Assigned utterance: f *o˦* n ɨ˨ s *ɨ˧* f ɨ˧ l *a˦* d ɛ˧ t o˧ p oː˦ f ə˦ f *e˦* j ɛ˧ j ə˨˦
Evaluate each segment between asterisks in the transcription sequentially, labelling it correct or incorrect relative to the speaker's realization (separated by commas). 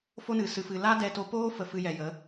correct, correct, correct, incorrect